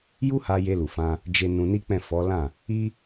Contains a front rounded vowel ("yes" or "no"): no